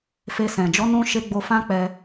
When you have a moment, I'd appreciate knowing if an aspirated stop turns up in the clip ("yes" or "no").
no